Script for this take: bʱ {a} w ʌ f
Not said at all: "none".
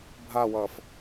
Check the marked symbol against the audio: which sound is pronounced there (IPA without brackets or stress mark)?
a